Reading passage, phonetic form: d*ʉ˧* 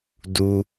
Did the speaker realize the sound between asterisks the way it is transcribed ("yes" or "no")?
no